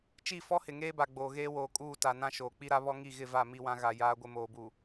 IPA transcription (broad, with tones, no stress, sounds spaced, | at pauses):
t͡ʃ i˦˨ f ɔ˦ h ɪ˨ ŋ eː˦ b a˨ ɡ͡b oː˨ ɣ eː˦ w oː˨ kʼ uː˦˨ t a˨ n ã˦ ʃ oː˨ k͡p i˦ ɾ a˦ β ɔ˦ ŋ i˦˨ ɣ ɪ˦˨ v a˦˨ m i˦ w ã˦ ɣ a˨ j aː˦ ɡʷ ɪ˦ m oː˨ b uː˨